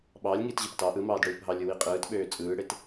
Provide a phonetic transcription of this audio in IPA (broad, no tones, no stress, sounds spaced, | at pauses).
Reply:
ɓ ɑː lʲ ŋ iː t ʑ ɯ p t ɑ ʔ ɯ m ɑː d ɽ ɯː p ɦ ɑ lʲ ɯ w i qʼ ɯː t ɓ øː t͡sʼ ɯː ɽ e t